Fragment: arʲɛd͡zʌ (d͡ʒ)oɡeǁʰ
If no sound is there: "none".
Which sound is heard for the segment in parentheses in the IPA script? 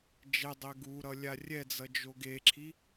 d͡ʒ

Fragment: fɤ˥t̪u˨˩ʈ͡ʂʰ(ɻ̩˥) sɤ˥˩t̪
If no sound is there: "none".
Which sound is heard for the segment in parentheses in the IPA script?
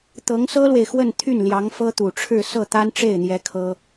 ɻ̩˥˧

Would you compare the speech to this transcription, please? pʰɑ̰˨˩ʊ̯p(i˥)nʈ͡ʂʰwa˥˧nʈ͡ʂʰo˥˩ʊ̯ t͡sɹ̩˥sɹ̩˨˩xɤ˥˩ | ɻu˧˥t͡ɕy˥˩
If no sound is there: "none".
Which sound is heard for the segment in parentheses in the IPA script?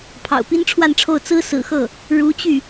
i˥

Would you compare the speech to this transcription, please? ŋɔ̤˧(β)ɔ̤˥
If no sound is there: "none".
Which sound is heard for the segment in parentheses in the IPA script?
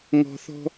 θ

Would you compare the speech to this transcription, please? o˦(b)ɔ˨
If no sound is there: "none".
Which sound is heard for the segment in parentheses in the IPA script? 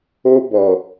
b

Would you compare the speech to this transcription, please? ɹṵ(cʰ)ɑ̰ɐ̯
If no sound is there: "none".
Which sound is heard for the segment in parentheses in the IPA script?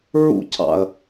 cʰ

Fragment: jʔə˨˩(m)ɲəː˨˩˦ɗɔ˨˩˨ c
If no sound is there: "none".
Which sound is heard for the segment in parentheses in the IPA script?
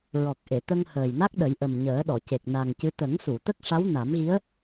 m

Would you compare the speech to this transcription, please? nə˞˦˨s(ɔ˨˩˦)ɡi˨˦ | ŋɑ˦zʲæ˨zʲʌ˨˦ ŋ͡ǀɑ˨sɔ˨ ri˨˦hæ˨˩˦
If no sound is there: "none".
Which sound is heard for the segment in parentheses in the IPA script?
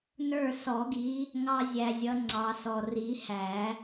ɔ˨˩˦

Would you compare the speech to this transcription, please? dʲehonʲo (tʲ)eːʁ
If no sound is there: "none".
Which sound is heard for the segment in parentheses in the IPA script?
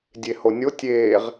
tʲ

